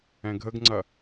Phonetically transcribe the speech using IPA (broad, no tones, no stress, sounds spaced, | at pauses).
ɛ̃ ɡʱ ə ɡ ŋ͡ǀ ɐ